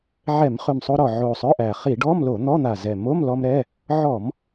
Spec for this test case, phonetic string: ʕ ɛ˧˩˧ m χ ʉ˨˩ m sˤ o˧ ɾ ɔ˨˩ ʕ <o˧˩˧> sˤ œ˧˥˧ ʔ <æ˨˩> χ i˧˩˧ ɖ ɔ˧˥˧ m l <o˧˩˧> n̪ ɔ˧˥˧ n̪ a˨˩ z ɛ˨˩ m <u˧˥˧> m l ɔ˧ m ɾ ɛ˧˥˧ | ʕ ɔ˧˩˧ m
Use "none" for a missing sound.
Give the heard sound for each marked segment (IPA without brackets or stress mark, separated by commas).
o˨˩, æ˨˩, o˧˩˧, o˧˥˧